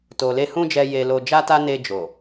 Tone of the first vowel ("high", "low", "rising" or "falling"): low